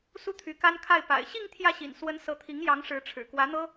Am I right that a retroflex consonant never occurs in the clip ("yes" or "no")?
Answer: no